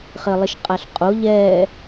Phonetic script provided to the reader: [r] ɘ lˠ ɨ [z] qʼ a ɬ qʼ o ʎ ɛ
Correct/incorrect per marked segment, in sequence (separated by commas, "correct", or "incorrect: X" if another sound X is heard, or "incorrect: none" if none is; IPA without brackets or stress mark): incorrect: χ, incorrect: ʃ